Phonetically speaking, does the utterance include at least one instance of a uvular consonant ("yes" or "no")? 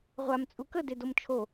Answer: yes